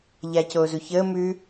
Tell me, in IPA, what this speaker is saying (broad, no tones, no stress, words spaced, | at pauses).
ʎacoːzuçəː mʉ